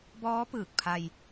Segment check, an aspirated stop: present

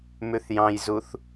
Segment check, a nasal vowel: present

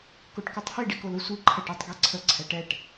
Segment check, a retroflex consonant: present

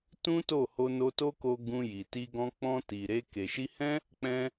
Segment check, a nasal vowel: present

